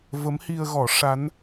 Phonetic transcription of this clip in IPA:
v ə˧˥ m h i˧ ə̯ ɣ ɔ˨˩˦ ʂ a˧˥ n

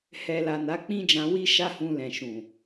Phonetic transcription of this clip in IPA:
h ɛ˨ l a˨ n a˨˦ k͡p ĩ˦ d͡ʒ ã˧ w i˦ ʃ a˦ h ũ˧ l ɛ̃˨ ʃ ũ˨

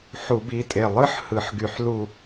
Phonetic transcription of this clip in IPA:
ħ u˧˩˧ b i˩˧˩ tʼ e˧˩ lˠ ɯ˥ ħ h ɯ˧˩˧ ħ ɡ y˧˩˧ ħ l u˥˧

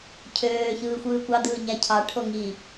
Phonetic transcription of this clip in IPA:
cʰ øː ç ɯː xʷ ɯː kʷ ɑ d̪ ɯː ɲ æ cʰ ɑ ʈʰ o ŋ i

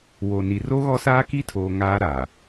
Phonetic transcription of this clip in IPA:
w o˨ n i˨ r o˦ ɣ ɔ˦ s aː˦ k i˦ tʰ oː˨ ŋ aː˦ ɾ aː˨

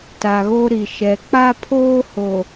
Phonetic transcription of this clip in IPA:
t a˨ ɣ o˦ ɾ i˨ ʃ ɛ˨ k͡p a˦ pʰ oː˦ h o˨

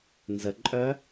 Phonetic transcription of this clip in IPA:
n z ə ǃʼ œ

